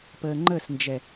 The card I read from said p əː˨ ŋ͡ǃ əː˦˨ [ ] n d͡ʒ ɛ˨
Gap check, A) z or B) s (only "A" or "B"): B